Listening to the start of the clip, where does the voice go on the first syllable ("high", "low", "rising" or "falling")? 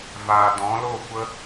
low